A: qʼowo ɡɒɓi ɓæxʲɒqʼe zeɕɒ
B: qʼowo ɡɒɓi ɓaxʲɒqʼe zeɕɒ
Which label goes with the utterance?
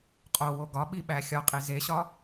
A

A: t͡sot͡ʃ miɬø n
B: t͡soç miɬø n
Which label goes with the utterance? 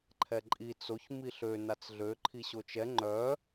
B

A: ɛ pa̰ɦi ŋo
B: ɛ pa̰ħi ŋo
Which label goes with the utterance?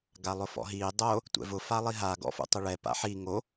B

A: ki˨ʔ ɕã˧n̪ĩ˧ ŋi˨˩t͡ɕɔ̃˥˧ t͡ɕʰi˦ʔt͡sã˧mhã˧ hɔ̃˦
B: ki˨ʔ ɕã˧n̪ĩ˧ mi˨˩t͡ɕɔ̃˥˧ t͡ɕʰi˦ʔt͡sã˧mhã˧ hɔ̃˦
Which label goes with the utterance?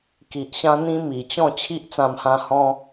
B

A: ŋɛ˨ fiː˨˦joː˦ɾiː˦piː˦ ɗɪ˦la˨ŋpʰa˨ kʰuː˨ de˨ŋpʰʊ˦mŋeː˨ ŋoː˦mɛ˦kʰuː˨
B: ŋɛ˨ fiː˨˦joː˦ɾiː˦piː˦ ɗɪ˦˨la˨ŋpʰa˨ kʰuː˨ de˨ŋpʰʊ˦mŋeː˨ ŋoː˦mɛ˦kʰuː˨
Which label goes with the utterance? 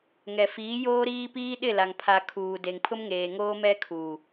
B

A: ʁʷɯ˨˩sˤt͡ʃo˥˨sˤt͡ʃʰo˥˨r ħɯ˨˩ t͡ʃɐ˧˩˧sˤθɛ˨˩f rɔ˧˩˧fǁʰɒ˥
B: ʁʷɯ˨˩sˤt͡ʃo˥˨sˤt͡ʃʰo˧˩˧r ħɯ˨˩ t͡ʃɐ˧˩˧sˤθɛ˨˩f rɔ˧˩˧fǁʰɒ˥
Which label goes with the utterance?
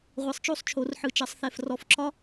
B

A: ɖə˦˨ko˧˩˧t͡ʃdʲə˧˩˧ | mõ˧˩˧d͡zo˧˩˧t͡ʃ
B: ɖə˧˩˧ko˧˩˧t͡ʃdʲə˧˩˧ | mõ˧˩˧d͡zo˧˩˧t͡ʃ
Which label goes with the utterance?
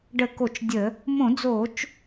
B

